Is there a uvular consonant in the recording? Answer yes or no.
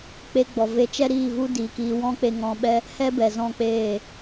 no